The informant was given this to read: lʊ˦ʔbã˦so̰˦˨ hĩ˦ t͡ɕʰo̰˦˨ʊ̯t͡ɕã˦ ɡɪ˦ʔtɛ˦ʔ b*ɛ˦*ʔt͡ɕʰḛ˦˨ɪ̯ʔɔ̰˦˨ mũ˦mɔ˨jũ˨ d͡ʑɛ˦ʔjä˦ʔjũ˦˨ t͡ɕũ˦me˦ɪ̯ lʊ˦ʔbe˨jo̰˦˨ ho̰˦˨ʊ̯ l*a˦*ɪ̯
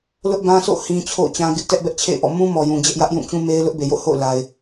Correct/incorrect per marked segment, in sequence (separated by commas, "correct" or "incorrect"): correct, incorrect